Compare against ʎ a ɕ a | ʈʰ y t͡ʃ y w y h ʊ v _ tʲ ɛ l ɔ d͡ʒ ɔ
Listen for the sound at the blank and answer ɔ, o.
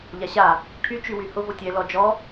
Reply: o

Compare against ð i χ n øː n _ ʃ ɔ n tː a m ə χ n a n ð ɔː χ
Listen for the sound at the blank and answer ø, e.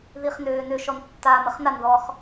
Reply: ø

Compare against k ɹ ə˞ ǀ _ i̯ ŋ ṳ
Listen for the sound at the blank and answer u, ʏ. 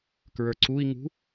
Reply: u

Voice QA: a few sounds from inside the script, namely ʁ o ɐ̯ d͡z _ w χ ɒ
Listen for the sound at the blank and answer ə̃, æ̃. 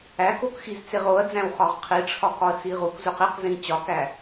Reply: æ̃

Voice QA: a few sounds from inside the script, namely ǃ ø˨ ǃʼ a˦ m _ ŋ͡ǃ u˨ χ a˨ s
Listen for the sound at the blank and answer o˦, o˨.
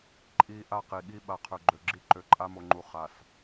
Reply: o˨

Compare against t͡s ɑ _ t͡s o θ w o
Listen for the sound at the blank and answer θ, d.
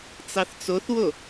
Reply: θ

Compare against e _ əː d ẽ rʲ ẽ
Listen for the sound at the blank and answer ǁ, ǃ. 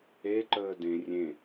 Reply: ǃ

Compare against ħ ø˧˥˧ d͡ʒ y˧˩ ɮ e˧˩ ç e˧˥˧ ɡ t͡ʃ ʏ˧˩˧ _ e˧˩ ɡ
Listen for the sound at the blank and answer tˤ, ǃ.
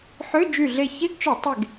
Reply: tˤ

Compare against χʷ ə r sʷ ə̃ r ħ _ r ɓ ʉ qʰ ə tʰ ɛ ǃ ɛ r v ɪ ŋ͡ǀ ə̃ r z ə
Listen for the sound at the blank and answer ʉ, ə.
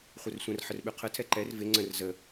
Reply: ə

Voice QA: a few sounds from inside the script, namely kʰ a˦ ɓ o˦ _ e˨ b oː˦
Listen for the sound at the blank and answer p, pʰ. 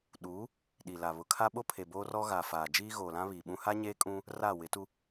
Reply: pʰ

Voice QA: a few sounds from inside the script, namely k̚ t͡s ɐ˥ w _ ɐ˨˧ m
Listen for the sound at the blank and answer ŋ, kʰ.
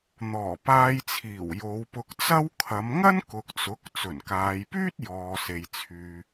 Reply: kʰ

